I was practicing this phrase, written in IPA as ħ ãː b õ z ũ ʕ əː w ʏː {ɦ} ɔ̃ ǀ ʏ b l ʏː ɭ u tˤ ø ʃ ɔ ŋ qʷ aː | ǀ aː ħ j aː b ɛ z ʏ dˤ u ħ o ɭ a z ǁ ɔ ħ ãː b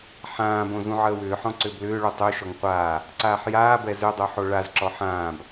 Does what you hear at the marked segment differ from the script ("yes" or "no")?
yes